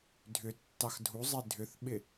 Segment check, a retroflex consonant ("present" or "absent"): absent